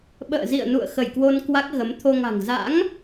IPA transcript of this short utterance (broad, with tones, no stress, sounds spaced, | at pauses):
ɓ ə̰ː˧˨ z ḭ˧˨ ə̯ n ṵ˧˨ ə̯ x ə˧˩ j k w o˧ n k w a˦˥ k̚ ɣ ə˨˦ m t̪ʰ o˧ ŋ a̤˨˩ ŋ z a̰˧˥ ŋ